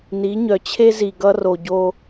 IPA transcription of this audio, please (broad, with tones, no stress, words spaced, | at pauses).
ni˨˦ɲœ˨ t͡ɕʰe˦zi˨ ɡʌ˦ro˨ɟo˦